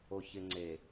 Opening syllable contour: low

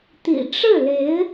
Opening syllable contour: low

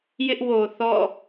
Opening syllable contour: high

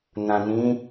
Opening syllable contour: low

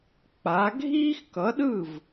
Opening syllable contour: rising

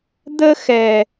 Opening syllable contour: high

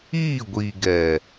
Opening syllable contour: falling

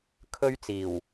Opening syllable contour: high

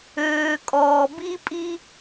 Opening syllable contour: low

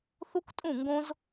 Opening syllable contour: high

